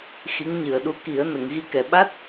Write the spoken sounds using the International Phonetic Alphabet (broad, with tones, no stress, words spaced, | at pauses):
xi˧˥ŋɲɨ˨˩ə̯ɗu˧˥ ki˨˩˦ə̯ nə˨˩˨ŋɣi˧kɛ˨˩ ɓa˦˥t̚